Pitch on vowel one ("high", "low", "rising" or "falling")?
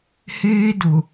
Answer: high